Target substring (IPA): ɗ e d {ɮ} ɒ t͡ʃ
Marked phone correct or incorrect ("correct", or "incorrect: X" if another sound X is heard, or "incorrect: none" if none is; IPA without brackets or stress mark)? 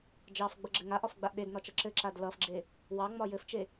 incorrect: n